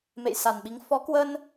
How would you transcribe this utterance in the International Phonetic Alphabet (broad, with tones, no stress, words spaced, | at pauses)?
mḛ˧˨jsa˨˩nɓi˨˦ŋ fɔ˨˦kwə˧n